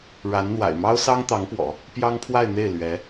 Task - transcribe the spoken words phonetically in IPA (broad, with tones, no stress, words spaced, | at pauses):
ɻa˧˥nn̪wa̰˨˩ɪ̯ mɑ˥ʊ̯sɑ˥ŋt̪ɑ˧˥ŋpwɔ̰˨˩˦ | pjɑ˥ŋpʰwa˥˧ɪ̯n̪e˥˩ɪ̯ lɥɛ˧˥